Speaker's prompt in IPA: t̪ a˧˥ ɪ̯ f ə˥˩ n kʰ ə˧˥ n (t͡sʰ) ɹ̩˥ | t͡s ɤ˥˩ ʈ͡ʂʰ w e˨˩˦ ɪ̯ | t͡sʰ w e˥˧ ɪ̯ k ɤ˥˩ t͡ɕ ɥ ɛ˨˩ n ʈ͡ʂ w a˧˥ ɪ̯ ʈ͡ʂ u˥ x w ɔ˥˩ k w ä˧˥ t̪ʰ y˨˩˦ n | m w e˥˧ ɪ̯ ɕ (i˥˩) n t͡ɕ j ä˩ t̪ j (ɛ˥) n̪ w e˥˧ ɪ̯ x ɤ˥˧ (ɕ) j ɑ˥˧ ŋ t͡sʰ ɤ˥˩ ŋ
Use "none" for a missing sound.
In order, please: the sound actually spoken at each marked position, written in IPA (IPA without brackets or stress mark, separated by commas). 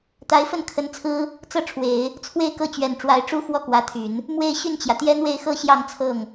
t͡sʰ, y˥˩, ɛ˥, ɕ